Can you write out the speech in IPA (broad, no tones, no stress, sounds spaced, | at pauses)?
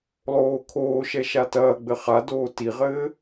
lˠ oː kʰ oː ʃ ɛ ʃ a t ɐː ɡ͡b ɘ χ a d oː t i ʁ ɘː